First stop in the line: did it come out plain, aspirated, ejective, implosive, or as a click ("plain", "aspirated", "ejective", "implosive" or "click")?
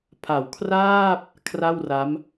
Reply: aspirated